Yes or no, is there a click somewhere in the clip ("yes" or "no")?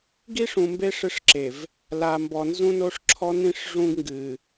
yes